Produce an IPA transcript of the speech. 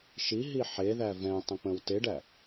ʃ i ɦ i ħ e ð æ v ɛ̃ tˤ ə̃ k͡p ə̃ w t e ɖ æ

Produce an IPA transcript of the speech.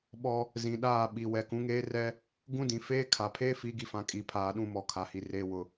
ɓ ɔ˦ | z ĩ˨ ɗ aː˦˨ ɓ i˨ w ɛ˨ k ũ˨˦ ŋ eː˦ r ɛ˦ | ɡ ũ˦ d ĩ˨ f eː˦ kʰ a˨ pʰ eː˦ f i˨˦ ɡ i˨ f ã˨ kʼ i˨ pʰ aː˨ ɗ ũ˦˨ m ɔ˨ kʰ a˨ h i˨ r eː˨ w ʊ˨

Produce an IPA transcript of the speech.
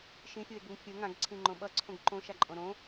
ʃ ĩ fʲ u e̯ ɡ u ŋ fʲ ɯ ŋ ã ɡ ǀʰ ĩ ŋ͡ǃ õ ɓ ʌ ǀʰ õ ɡ ǃ õ ʃ a ǃʼ õ ɾ õ

